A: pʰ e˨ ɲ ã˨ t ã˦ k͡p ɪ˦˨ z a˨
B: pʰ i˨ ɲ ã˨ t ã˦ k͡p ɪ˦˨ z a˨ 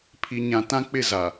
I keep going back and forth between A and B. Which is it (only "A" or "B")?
B